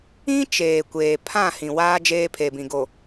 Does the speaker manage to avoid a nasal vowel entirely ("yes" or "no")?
no